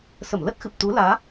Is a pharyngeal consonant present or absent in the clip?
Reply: absent